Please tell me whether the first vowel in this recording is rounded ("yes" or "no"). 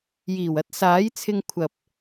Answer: no